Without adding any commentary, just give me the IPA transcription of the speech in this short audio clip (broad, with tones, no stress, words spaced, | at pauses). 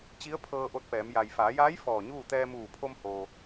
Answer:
t͡ɕi˧˥ə̯pʰɤː˧ ʔo˧t̚pɛː˩˧m ja˩jfaː˩˧jaː˧˥j fɔː˧˩ɲuː˥˨ t̪ɛː˧muː˧˩pʰo˧mho˩